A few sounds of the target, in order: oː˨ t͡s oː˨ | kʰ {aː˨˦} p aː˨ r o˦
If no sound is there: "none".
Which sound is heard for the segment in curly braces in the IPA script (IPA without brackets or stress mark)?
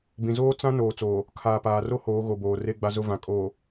aː˨